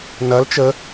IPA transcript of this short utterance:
nɐl t͡ʃə

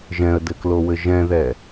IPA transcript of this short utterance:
ʒɛ̃ə̯dɘklowɘ ʒɛ̃ðɛ

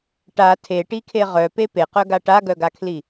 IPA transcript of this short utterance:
ʈa tʰeʈikʰe ʁœpe peqœɡa ʈaɡœɡakʰli

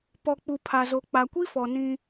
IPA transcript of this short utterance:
pɔ˨k͡pu˨ pʰa˨zo˨ k͡pa˨kʷi˦fɔ˨ nĩ˦

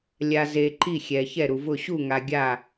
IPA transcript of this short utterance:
lʲa˨ ze˨ ǃi˥˩xʲɛ˨ çɛ˥˩ɾu˨vʊ˥˩ ɕu˥˩ŋa˨ ɡʲa˥˩

